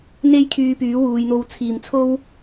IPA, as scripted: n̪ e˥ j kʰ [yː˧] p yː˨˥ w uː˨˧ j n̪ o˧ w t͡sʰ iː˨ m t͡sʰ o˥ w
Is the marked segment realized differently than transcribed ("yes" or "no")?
no